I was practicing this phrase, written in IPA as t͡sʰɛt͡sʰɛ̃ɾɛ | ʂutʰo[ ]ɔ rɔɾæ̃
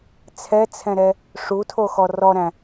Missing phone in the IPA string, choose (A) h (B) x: B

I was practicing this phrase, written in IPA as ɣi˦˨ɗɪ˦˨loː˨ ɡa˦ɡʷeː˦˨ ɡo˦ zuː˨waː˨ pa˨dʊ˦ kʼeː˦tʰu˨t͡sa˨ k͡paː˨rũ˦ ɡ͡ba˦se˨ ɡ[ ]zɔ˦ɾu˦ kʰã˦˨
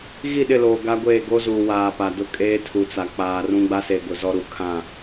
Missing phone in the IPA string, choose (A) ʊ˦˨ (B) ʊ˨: B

